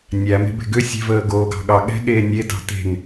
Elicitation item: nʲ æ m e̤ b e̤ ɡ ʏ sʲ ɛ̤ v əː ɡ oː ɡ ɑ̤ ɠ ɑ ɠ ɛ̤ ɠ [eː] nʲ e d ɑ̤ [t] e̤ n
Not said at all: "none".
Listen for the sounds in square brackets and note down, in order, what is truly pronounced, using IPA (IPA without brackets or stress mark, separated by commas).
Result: eː, t